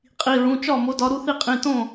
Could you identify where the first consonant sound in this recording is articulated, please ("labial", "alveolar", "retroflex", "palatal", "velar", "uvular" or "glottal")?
uvular